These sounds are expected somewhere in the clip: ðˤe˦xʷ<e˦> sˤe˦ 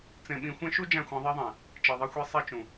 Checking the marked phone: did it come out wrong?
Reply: no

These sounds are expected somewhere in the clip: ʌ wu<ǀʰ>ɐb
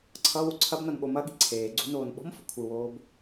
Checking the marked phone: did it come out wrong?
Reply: no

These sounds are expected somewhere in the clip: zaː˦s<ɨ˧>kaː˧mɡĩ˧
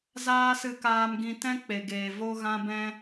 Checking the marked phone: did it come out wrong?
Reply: no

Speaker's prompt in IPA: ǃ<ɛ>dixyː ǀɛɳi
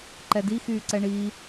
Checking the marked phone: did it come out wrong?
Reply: no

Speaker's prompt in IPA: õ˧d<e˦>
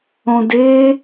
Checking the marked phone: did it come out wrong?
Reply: no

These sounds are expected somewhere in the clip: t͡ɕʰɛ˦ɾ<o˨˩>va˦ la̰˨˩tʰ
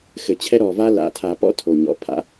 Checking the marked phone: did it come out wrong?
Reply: yes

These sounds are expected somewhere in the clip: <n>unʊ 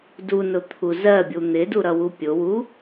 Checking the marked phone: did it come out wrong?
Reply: yes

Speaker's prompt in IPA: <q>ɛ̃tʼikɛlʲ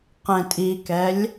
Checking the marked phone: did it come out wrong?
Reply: no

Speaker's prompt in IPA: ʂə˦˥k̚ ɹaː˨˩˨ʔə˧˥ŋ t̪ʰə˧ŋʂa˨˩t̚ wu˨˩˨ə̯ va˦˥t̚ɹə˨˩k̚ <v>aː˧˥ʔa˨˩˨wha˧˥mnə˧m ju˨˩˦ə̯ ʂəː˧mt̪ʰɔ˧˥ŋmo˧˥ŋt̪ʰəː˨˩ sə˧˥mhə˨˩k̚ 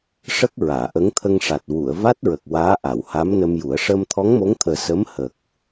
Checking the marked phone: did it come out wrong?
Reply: yes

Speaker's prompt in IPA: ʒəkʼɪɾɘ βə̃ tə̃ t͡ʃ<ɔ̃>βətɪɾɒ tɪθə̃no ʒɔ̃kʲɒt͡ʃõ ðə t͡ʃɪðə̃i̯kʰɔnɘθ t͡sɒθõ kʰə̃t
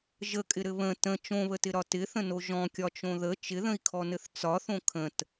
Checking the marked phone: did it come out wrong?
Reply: yes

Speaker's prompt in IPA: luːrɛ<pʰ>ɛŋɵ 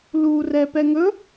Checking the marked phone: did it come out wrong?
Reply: yes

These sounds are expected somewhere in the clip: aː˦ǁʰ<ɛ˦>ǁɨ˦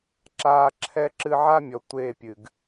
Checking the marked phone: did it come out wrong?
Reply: no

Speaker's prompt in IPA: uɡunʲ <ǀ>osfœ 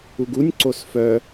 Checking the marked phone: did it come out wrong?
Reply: no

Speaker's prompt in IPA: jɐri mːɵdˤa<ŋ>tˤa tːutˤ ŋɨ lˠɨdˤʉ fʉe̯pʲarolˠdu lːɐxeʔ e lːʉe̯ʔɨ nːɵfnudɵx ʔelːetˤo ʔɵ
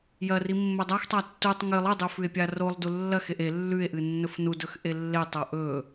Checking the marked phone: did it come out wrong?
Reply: yes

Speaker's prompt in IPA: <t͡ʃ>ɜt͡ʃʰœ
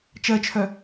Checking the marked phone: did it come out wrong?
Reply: no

